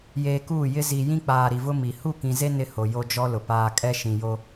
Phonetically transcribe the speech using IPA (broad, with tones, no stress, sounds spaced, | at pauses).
j eː˨ k uː˦˨ j ɪ˦ z iː˨ j ĩ˦ k͡p aː˨ ɾ i˨ v ʊ˦ m i˨ h u˦˨ k ĩ˨ z e˦ n ɪ˦ h o˨ j o˦ d͡ʒ ɔ˦ l ʊ˨ p aː˦ kʼ ɛ˦ ʃ ĩ˨ j o˦